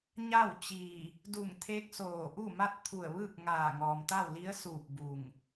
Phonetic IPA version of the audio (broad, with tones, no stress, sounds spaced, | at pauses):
ɲ a˥˨ w t͡ɕ iː˧˩ | d u˧˩ ŋ t̪ʰ eː˧˥ k̚ s oː˧˩ ʔ u˥˨ m a˥˨ t̚ t̪ʰ u˧˩ ə̯ ʋ ɯː˥˨ k̚ ŋ aː˧˩ ŋ ɔː˩ m t̪ a˥˨ w l i˧˥ ə̯ s uː˧˩ p̚ b u˧˩ ŋ